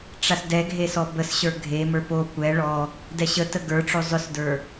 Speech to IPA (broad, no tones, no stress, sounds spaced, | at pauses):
ʈ͡ʂ a s d ɛ ɡʱ e s ɔ b ə s ɕ ə˞ ɡʱ e m ə˞ p o kʷ ɛ ɭ ɔ | d ɛ ɕ ə t ə ɡ ə˞ ʈ͡ʂ o zˤ ʏ s d ə˞